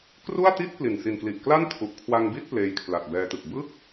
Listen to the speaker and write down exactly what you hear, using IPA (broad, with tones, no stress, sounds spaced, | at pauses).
k r u˥˩ a̯ t i˥˩ t̚ p l i˨˩ n s i˨˩ n k l i˨˩ ʔ k l a˥˩ n tʰ u˨˩ ʔ kʰ w a˧ ŋ b i˥˩ t̚ p l eː˧ j kʰ l a˨˩ t̚ b ɛː˧ t ɯ˨˩ k̚ b ɯ˥˩ k̚